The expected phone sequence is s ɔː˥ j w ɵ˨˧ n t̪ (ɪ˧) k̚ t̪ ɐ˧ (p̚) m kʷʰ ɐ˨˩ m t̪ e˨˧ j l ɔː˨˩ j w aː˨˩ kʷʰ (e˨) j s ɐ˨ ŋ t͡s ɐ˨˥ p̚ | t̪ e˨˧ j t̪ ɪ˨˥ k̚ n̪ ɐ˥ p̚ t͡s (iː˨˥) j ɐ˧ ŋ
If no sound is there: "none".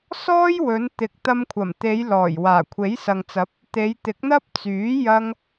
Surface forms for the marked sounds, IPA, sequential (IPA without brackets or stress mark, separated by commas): ɪ˨˥, none, e˨˥, yː˨˥